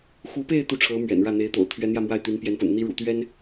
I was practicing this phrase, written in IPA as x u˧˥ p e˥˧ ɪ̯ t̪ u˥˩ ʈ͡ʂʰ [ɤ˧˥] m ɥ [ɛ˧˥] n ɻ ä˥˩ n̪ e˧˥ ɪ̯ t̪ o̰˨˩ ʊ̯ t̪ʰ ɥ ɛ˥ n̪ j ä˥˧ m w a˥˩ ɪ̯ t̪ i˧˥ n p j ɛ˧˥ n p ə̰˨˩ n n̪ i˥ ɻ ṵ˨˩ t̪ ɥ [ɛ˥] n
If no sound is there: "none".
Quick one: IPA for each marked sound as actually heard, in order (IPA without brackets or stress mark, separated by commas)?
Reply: ɤ˧˥, ɛ̰˨˩, ɛ˥